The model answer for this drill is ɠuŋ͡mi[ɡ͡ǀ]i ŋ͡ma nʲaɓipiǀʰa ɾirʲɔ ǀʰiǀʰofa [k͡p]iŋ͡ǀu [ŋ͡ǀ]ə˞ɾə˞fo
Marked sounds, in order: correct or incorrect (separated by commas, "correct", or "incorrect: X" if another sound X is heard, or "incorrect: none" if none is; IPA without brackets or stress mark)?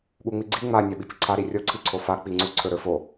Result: correct, correct, incorrect: ǀʰ